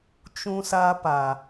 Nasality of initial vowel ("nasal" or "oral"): nasal